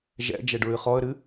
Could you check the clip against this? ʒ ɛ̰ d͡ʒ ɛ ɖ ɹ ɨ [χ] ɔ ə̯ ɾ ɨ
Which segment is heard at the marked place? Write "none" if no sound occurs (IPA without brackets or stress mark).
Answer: χ